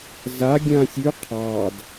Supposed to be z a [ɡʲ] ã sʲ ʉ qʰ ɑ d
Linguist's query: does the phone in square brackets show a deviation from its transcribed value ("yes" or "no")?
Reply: no